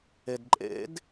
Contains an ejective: yes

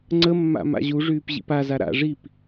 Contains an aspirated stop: no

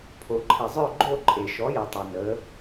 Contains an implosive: no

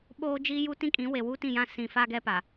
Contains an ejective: yes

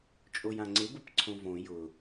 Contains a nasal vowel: yes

